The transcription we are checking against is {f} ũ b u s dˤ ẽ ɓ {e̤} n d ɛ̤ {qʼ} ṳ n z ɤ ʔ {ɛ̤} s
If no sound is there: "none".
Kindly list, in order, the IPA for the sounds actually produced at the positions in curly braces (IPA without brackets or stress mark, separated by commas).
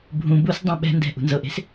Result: bʱ, ɛ̤, ʔ, e̤